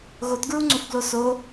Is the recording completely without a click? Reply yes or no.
no